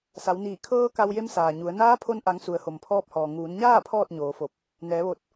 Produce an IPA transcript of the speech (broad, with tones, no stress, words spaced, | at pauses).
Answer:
sa˩˧wniː˧˩ kʰɤː˧ ka˧wje˧˥msaː˩ɲu˩˧ə̯ naː˧˥pʰo˧nʔa˩˧ŋ su˩ə̯ho˩mpʰɔː˧p̚hɔː˩ ŋuː˩˧nɲaː˥˨ pʰɔː˥˨t̚ɲoː˩˧fo˧˩p̚ | nɛː˩˧ʋo˧˩t̚